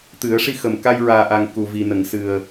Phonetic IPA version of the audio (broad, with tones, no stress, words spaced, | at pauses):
t̪ɨ˨˩˦ə̯ʂi˧xə˨˩m ka˧jɹaː˨˩ʔa˨˩ŋ ku˨˩vi˨˩nə˨˩˨ŋ sɨ˨˩ə̯